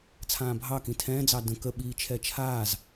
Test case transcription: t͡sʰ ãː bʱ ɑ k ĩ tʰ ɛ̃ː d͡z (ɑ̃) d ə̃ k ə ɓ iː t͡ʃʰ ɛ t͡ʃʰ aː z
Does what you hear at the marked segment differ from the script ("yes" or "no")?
yes